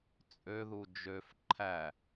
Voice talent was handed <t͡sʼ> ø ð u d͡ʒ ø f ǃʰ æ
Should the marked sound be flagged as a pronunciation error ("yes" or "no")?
no